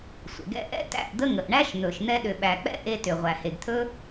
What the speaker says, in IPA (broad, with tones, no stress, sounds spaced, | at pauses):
sʷ ə̰˨ ɡ ɛ̰˦ ʔ ɛ̰˦ t æ̰˦˨ ʔ d̪ ə˦ ŋ ə˨ ʔ ɳ æ˦ ʃ n̪ ɵ˨ ʃ n̪ ɛ˧ ɗ ʏ˨ ɓ æ˨ k͡p ɛ̰˦ ʔ e˧ t ʏ˨ ʁʷ æ˨ h e˨ ɡ t̪ʰ ɵ˦